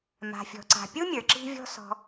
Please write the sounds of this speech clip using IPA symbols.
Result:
m a̤˩ fʲ ɔ̤˩ ǀ a̤˩ pʲ u˥ mʲ ə˞˩ ǁ i̤˦ vʲ ɔ̤˦ s ɔ̤˨

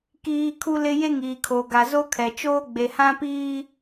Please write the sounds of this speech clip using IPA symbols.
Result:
k iː˦ kʰ u˦ l ɪ˦ j e˦ ŋ iː˨ kʰ o˨ ɡ a˨ z o˦ kʰ ɛ˨ t͡ʃ oː˦ ɡ͡b e˨ h ã˦ p iː˦

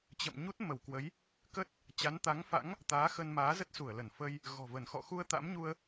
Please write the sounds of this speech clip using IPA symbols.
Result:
t͡ɕ ə̰˧˨ m ɲ u˦˥ t̚ m ə˧˩ w k w ə˨˦ j | k ə˦˥ t̚ | t͡ɕ a˨˦ n t̪ a˨˦ ŋ f a̰˧˥ ŋ | t̪ aː˨˦ x ə˧ n m aː˨˦ z ə˦˥ t̚ s u˧˩ ə̯ l ə˧˩ n f ə˧ j | ɣ ɔ̤˨˩ v ə˧˩ n x ɔ̰˧˨ x u˧ ə̯ t̪ a̰˧˥ m ɲ u˧ ə̯

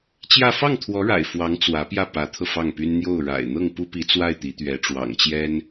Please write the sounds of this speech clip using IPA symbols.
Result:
t͡ɕ j ä˥˧ f ɑ˥˩ ŋ t̪ʰ w ɔ˧˥ ɻ a̰˨˩ ɪ̯ f w ɑ˧˥ ŋ t͡s w ä˧˥ p j ä˥˩ p ä˧˥ t̪ʰ ɤ˧ f ɑ˥˩ ŋ p y˥ n n̪ j o˥˩ ʊ̯ ɻ a̰˨˩ ɪ̯ n̪ ɤ˥˩ ŋ p u˥ p i˧˥ t͡s w a˥˩ ɪ̯ t̪ i˧˥ t̪ ɥ ɛ˧˥ ʈ͡ʂ w ɑ̰˨˩ ŋ t͡ɕ j ɛ˥ n

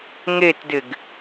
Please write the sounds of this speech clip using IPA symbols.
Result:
ŋ e t d ɪ ɡ

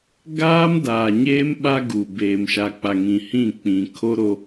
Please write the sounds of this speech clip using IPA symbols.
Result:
ɡ aː˦ m d aː˨ ɲ eː˦ m ɓ a˦ ɡ u˨ b eː˨ m ʃ a˨ k͡p a˨ ŋ ĩ˨ h ĩ˦˨ k͡p ĩ˨ kʰ o˦ ɾ o˦

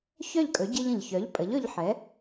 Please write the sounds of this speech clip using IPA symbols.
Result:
ç œ˥˨ ʎ kʼ ɵ˩˥ ɟ ɨ˧ ʎ ə̃˩ ʎ ç œ˩˥ ʎ pʼ ə˩˥ ʎ ɵ˧ ʎ ħ ɛ˩˥

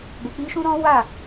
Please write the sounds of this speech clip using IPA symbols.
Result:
ɡ͡b e˨ k͡p i˧ ʃ ũ˦ ɾ ɔ̃˦ w a˦˨

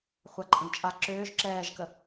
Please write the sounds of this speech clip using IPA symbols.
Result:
χʷ a ǃʼ ə̃ ɡ t͡ʃʼ a ǁ ʏː ʒ ǁ ɛː ʒ k ə

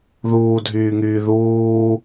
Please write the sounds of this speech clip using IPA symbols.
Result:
ð uː dʱ yː ŋ yː ð uː

